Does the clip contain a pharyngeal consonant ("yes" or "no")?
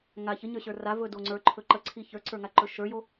no